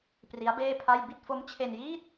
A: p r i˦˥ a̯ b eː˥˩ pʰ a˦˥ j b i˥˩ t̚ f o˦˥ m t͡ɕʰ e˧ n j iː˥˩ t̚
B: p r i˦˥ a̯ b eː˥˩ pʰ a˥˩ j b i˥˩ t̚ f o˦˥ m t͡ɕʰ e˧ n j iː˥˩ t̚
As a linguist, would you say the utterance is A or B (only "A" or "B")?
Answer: B